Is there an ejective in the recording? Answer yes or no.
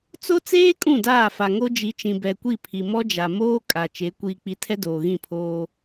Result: yes